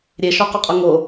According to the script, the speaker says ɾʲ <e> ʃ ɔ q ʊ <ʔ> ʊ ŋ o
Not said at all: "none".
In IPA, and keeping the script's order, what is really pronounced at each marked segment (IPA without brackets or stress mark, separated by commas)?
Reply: e, qʼ